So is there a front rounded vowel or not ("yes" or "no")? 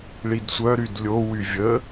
yes